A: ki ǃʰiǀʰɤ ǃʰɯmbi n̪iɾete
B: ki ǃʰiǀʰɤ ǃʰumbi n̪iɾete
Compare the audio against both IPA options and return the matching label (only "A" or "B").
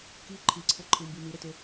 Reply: A